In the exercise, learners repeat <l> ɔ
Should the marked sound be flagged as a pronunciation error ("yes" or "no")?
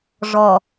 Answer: yes